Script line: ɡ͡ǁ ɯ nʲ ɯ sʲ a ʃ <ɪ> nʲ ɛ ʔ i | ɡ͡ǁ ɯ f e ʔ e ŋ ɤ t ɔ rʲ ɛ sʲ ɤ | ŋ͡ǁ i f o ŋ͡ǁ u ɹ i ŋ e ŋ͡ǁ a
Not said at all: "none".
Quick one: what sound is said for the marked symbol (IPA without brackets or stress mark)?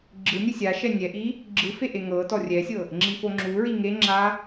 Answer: ɛ